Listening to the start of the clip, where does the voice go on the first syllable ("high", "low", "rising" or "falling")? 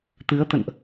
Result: rising